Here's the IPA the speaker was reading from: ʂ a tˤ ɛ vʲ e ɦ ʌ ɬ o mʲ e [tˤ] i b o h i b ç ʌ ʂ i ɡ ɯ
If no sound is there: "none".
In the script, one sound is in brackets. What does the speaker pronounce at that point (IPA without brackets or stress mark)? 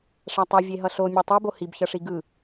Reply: tˤ